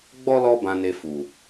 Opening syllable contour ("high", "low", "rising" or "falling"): high